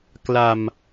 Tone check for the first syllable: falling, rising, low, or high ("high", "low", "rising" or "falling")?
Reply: low